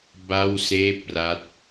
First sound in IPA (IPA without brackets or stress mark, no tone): b